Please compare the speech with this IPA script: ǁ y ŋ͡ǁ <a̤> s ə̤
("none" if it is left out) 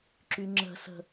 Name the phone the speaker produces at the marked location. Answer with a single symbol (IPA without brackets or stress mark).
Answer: ə̤